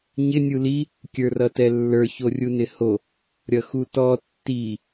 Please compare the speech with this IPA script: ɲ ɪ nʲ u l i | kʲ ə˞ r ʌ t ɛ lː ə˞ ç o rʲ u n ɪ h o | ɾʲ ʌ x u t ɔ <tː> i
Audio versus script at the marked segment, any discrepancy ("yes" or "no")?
no